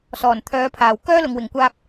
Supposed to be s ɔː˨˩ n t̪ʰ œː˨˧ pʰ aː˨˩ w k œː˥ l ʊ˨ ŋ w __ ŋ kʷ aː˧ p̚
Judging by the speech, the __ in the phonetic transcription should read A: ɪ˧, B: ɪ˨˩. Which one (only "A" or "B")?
B